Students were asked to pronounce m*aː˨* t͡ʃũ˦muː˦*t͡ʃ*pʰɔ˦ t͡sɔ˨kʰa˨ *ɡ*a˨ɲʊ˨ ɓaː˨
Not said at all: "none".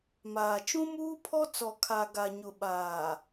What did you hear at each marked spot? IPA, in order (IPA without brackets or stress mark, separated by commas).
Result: aː˨, none, ɡ